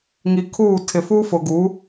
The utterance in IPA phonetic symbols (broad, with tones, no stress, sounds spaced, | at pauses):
ŋ i˨ kʰ uː˦˨ tʰ ɪ˨ f uː˦ f ʊ˨ ɡ u˨˦